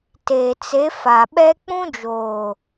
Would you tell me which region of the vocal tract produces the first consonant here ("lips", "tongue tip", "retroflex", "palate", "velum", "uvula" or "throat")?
tongue tip